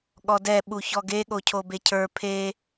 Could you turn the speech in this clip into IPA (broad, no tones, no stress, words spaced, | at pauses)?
ɠɔdɛ ɓuçɔɡe ɠocʰobecʰə˞ pʰe